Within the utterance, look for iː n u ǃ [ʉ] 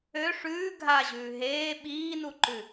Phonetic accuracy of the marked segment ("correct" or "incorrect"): correct